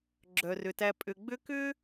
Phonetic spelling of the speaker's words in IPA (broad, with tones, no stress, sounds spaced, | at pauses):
ɡ͡ǁ œ˩ r ʏ˩ t æ˨ pʼ ʏ˨ ɡ͡b ʏ˦ k ʏ˥